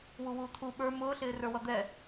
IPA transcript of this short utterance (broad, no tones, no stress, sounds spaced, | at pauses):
w u w uː t̪ʰ u ɓ ə˞ m ʊː ɬ ɪː r ə˞ w ʌ d̪ ɛ